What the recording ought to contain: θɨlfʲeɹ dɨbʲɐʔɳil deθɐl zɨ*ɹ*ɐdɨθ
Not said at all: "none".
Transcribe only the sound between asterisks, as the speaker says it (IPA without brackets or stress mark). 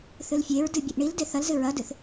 ɹ